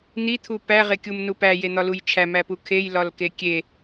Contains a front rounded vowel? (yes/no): no